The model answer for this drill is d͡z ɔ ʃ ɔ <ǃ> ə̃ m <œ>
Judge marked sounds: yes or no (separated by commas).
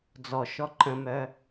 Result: yes, yes